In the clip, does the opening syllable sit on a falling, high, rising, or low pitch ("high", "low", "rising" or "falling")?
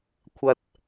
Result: low